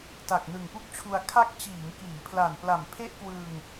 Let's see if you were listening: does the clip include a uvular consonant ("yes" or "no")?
no